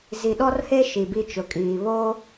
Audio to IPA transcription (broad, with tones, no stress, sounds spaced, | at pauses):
z i˨ ɗ ɔ˦ r h e˦ ʃ i˨ b i˦ t͡ʃ ʊ˨ kʼ iː˨ β oː˦